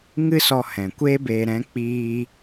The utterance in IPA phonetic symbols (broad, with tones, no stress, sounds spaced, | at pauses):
ŋ ɨ˦ s ɔ˧ h ɛ̃˨ kʷ e˦ b eː˧ ɾ ɛ̃˨˦ k͡p iː˧